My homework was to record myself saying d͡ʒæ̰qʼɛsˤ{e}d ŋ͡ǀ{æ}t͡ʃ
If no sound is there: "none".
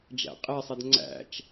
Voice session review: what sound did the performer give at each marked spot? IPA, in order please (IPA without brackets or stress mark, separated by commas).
ɛ, æ̰